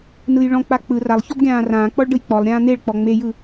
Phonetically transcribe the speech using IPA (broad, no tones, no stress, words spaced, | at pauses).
nɯjɭɔ̃k͡pa k͡pɯ ralˠ çɔbɡʲãːrãːk͡pɔɭ ɖɯjk͡pɔlˠɾʲãː n̪eɭk͡pɔ ŋ͡mejɯ